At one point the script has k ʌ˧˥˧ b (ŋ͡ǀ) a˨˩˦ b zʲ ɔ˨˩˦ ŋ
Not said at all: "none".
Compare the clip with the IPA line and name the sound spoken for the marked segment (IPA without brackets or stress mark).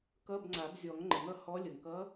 ŋ͡ǀ